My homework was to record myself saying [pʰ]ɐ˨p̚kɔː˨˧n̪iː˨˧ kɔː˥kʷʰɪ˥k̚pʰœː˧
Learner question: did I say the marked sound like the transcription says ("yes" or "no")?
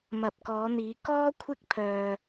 no